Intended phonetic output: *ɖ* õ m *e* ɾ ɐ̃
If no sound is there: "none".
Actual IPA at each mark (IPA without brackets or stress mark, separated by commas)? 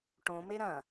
ʈ, e